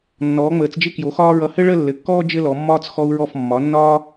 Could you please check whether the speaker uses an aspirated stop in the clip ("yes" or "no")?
no